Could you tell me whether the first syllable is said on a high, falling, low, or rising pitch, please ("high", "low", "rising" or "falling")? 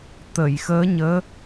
low